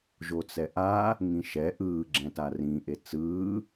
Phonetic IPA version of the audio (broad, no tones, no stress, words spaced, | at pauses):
ʒot͡sɛʔa | ŋĩʃɛ ʔɯː ɡ͡ǁɛ̃tarĩ ʔet͡sɯː